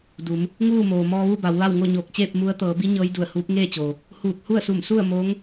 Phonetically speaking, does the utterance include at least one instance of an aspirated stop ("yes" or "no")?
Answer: no